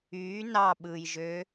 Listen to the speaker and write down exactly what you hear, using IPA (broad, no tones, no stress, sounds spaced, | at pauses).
y n ɑ ɓ ɯ j ʒ ø